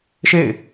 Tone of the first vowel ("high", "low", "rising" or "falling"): falling